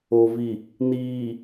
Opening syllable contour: low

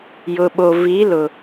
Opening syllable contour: low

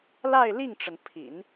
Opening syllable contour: falling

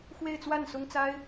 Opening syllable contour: falling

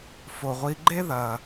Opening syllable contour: low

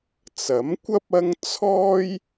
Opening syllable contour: rising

